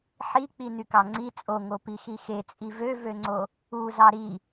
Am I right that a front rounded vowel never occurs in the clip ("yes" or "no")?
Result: no